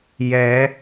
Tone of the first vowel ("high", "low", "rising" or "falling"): rising